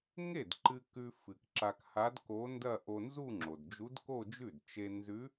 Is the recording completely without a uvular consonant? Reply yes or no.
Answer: yes